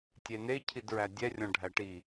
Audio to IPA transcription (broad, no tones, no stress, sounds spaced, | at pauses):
tʲ e n e cʰ i d ɹ æ dʲ ɛ rʲ ɔ̃ ɖʱ æ ʈ i